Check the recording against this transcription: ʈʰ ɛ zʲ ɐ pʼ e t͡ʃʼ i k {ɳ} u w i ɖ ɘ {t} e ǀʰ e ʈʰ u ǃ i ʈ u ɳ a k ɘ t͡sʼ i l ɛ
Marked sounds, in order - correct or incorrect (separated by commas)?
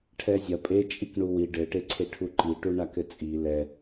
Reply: correct, incorrect